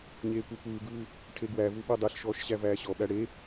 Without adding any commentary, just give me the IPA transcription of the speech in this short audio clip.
ɲ eː kʷ ɜ kʷ ɯː ɡ ɯː | ʈʰ e ɡ w æ v u ɓ o dˤ e ɬ ʃ ɔː ʃ ɕ æ v æː ɕ ɔ ɓ æ ɽ e

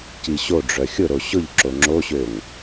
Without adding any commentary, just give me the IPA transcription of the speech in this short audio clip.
c i ɕ o ɖ͡ʐ œ xʲ ʊ ɾ o ɕ ʊ ʎ ǁ o ŋ͡ǁ o ɕ ø ŋ

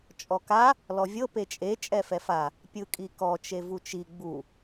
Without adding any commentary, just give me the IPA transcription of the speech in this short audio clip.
t͡ʃʼ ɔ k a | l ɔ vʲ ɤ p e t͡ʃʼ e t͡ʃʼ ɛ f ɛ f a | pʲ ɯ kʼ i k ɔ t͡ʃ e v u t͡ʃ i ɡ͡b u

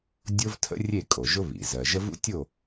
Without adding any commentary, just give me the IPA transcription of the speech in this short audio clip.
dʲ o˥ v tʰ ə̰˥ rʲ e˥˨ kʼ o˩ ʒ ʊ˥ β ḭ˩ z ɜ˩ ʒ ə˥ v ṵ˥ tʲ o˥˨

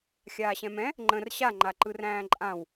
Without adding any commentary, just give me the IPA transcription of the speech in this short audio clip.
xʲ aː ɕ ɛ̃ m ɛ̃ | ŋ͡ǃ ə̃ r ɕ a ŋ͡ǃ a ǃ ɯ r æ̃ː ǃʼ ã w

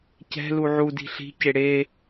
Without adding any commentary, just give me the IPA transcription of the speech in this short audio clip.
c ɛ̤ l u ʕ u d i̤ ɬ i̤ c e ɽ e

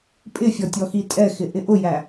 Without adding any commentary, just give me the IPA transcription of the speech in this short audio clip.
pʼ ɪ fʲ ɔ tʲ ɔ x i tʼ ɛ x ɪ ʔ ɪ ʔ ʊ j æ

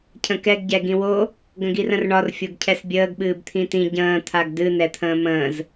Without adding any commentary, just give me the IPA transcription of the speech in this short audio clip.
cʰ ə̃ k ɛ ɡ ɟ ɛ ɡ ĩ w o | ɡ ə̃ ɡ i r ə̃ r ɳ ɒ r fʲ o ɡ cʰ ɛ s bʲ əː ɡ ɓ ɨː b t̪ʰ ĩ t ĩ ɟ ə̃ː t̪ʰ a ɡ d ɨ n ɛ t̪ʰ ə̃ː m ə̃ː z

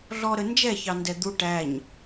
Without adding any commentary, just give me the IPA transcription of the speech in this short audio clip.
ɮ ɔ ɾ ə n d͡ʒ ɛ ç ɑ n d ɛ d̪ u ʈ æ ɲ

